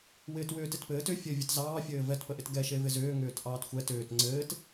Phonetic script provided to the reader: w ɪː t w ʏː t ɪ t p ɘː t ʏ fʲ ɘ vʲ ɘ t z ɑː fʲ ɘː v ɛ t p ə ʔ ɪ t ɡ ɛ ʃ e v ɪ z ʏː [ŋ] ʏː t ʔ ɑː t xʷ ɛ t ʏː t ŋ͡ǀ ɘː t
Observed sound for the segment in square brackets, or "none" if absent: ŋ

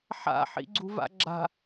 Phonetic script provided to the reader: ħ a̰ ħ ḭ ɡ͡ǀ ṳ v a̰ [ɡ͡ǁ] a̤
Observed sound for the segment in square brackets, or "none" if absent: ɡ͡ǁ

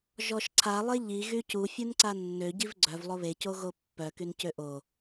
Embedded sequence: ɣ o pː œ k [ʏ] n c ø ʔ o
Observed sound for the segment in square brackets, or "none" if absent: y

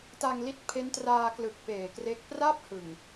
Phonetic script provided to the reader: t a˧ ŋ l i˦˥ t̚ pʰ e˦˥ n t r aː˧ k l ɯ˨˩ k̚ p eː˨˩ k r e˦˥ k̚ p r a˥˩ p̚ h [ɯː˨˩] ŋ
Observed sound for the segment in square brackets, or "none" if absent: ɯ˨˩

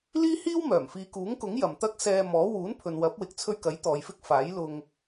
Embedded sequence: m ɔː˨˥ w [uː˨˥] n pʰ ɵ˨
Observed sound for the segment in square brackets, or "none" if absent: uː˨˥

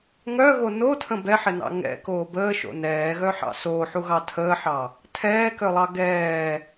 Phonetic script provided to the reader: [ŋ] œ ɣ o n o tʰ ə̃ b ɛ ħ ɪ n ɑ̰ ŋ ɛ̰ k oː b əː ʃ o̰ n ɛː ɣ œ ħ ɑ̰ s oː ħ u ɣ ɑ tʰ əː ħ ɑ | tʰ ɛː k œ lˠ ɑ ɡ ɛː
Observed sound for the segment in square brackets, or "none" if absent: ŋ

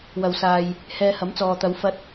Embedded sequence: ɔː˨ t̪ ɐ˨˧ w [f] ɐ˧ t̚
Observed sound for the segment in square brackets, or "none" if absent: f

